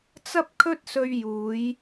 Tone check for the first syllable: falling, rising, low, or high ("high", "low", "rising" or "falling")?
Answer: high